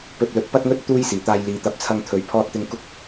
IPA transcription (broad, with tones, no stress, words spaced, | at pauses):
pɵ˧t̚lɵ˨˥t̚pɐ˥t̚ŋɵ˥t̚ t̪uː˥jsiː˨˩t̪aː˧jliː˨˧ t̪ɐ˨˥p̚t͡sʰɐ˧ŋt̪ʰɵ˨˧ɥ pʰɔː˧t̚t̪ɪ˧ŋ kʊ˥k̚